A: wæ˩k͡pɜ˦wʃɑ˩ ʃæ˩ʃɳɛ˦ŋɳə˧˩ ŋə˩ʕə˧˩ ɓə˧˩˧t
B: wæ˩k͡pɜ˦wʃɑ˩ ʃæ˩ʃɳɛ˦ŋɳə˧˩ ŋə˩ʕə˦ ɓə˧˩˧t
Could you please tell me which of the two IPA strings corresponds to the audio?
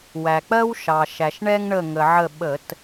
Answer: A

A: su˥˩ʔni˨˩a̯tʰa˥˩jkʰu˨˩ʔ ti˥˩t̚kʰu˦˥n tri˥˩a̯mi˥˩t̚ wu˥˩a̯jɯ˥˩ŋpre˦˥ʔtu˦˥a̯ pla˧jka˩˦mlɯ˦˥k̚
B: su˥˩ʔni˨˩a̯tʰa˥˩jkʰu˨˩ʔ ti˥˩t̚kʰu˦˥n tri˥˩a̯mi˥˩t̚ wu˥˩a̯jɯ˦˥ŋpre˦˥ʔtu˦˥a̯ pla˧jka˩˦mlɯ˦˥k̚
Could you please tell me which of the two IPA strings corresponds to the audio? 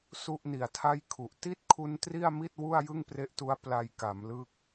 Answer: A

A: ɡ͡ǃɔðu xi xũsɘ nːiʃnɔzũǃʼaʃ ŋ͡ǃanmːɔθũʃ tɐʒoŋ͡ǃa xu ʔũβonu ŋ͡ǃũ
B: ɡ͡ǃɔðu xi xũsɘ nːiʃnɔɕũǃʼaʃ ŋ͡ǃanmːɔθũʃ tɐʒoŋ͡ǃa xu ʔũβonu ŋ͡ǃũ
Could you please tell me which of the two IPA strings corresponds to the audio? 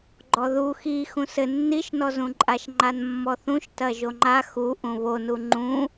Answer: A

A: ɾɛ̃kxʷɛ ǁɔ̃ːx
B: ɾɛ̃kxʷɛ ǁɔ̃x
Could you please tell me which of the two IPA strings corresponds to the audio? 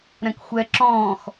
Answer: A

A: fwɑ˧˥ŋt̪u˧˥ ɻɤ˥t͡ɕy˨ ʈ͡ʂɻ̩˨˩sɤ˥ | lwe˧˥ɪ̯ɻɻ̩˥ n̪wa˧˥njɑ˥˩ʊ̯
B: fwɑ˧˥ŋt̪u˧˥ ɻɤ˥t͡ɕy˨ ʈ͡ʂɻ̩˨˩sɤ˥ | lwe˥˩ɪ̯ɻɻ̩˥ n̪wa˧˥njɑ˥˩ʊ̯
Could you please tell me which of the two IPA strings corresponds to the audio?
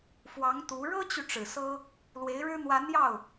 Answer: A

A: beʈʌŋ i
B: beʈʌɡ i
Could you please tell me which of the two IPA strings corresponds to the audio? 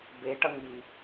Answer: A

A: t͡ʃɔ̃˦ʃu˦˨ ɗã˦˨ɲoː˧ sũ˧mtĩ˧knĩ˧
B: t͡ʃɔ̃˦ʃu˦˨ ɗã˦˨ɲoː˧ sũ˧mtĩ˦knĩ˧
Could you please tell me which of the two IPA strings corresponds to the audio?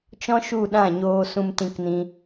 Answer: A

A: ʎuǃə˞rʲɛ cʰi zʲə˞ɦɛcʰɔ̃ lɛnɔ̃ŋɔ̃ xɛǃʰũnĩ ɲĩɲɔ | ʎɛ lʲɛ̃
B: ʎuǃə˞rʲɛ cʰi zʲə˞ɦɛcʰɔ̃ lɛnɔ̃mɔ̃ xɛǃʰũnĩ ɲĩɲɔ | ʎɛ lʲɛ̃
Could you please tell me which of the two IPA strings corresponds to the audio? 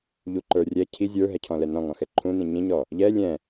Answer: A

